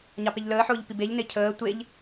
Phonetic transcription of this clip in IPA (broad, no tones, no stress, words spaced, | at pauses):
ɲɑpeʎləːħʊːʎ pibeʎne cʰəː tʷeʎ